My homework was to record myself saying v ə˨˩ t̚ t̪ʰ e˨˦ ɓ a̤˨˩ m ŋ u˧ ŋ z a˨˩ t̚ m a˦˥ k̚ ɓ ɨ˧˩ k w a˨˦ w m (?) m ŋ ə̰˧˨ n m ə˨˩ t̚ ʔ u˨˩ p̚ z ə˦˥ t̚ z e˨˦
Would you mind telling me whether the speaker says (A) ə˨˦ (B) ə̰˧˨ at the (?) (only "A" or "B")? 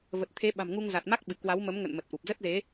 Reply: A